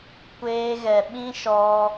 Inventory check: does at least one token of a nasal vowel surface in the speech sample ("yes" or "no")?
yes